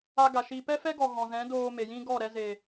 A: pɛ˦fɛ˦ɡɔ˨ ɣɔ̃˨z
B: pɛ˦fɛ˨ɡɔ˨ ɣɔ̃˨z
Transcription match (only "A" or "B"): A